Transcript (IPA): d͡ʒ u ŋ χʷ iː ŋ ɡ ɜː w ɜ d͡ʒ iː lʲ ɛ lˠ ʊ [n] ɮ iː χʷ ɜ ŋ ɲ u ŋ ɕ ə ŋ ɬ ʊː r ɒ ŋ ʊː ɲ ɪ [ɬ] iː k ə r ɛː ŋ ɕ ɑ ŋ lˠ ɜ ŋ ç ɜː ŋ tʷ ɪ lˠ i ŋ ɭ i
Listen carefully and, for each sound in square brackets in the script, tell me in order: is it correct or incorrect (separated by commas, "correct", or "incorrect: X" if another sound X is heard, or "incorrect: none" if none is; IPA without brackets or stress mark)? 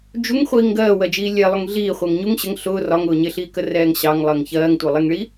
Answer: incorrect: ŋ, correct